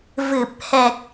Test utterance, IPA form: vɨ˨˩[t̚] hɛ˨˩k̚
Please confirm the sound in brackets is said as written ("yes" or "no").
no